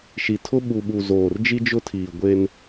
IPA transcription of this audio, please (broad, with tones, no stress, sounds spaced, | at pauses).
ʃ i˨ tʰ ʊ˦ ɓ u˨ ɓ u˨ z oː˨ r d͡ʒ i˦ d͡ʒ ʊ˦ tʰ iː˨ ɡʷ e˦ n